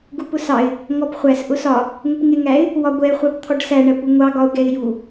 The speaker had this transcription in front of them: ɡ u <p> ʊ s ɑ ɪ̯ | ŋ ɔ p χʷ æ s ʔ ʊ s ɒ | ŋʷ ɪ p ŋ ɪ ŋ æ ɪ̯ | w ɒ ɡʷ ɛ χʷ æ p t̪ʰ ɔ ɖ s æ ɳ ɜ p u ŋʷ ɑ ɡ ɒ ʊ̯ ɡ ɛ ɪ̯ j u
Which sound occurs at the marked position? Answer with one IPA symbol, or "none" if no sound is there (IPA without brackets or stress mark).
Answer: p